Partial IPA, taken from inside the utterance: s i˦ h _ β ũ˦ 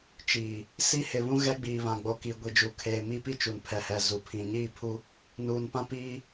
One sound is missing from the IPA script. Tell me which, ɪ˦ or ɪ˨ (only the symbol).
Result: ɪ˨